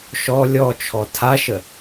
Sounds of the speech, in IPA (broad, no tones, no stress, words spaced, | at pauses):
ʃɔ lʲɔt͡ʃʰɔ tʰaʃə